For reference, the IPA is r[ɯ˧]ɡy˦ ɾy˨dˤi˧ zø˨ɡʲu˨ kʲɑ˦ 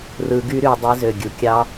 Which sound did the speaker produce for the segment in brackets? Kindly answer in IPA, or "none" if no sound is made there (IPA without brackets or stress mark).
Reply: ɯ˧